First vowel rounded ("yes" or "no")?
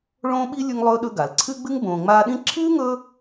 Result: yes